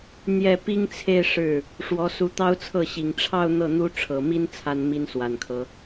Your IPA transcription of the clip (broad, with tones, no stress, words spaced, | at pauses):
n̪jɛ˥˩ pi˥ŋt͡sʰe˥˧ɪ̯ ʂɻ̩˥˩ | ʂwɔ˧˥ su˧˥t̪ɑ˥ʊ̯t͡sʰɤ˥˩ɕi˨˩ŋ ʈ͡ʂʰɑ˥˧ʊ̯ n̪ɤ˥˩n̪u˥ ʈ͡ʂʰɤ˨˩mi˥n t͡sʰa˥nmi˥nswa˨˩nkʰɤ˦